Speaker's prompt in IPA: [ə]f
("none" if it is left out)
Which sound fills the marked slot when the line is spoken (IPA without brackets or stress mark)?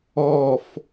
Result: ɔ